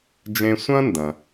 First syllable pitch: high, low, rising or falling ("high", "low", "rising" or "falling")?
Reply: high